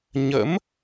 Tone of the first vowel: rising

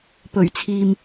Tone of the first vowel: low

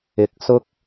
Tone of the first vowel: rising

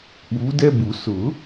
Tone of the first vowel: rising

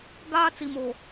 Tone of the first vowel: high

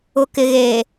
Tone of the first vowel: low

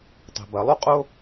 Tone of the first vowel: low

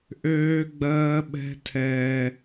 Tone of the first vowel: high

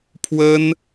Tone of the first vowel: high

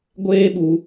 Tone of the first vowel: high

